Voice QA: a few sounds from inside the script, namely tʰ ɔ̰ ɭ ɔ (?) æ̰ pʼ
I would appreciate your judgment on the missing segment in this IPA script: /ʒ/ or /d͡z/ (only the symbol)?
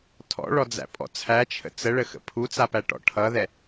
d͡z